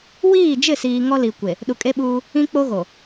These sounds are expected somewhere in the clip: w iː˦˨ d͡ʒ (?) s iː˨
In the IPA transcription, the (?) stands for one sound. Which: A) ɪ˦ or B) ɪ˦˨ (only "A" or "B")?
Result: B